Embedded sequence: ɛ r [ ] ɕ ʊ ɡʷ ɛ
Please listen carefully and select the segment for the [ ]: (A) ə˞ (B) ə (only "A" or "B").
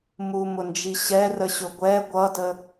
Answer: B